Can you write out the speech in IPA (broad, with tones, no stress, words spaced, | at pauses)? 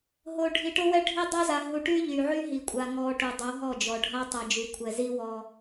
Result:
ɦo˨ ɖʱi˨ʈo˦wɛ˦ ɖʱi˦dˤo˦za˨ ɦu˨ʈy˦ ʎy˨ʕy˦ɦi˨kʷʼa˨ ŋɔ˨ ʈu˨dˤo˨˦ɦɔ˦˨d͡ʒɔ˨ ɖʱa˦tˤɛ˨d͡ʒy˨ kʷʰɛ˨zi˦ wɔ˦